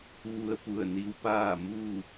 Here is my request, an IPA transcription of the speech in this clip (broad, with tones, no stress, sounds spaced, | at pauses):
ʋ u˧ ə̯ p u˧˩ ə̯ n i˧ w p aː˥˨ m uː˥˨